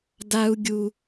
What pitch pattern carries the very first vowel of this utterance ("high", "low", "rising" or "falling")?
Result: high